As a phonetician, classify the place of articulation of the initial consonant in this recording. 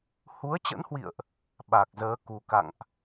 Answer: glottal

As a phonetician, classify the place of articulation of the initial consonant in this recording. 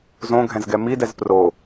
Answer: alveolar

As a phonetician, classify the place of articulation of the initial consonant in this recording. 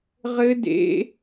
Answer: uvular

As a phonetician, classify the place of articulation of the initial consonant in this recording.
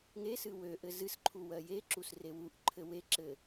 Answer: velar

